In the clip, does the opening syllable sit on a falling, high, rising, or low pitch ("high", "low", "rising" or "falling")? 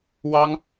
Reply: high